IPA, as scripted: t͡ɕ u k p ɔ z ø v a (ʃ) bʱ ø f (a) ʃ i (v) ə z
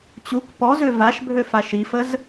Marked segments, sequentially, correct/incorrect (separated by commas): correct, correct, incorrect